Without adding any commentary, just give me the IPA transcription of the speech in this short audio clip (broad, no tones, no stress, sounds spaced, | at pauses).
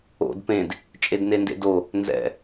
o̰ d p ẽ d | t͡ʃʼ e d n e n d ḛ d o | n z ɛ̰